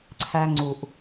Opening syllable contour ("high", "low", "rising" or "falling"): high